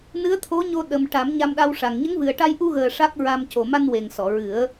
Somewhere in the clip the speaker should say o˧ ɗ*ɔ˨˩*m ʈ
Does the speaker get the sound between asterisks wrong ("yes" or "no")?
yes